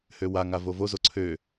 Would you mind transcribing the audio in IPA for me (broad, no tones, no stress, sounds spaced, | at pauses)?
h ø w a ŋ a v o v o z o ǀʰ ø